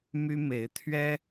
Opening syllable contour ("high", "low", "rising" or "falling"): high